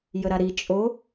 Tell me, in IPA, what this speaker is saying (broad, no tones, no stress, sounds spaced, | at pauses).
j ə ɾ a ɾ i t͡ʃʼ o